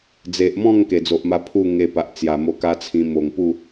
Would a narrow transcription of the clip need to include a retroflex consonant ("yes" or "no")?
no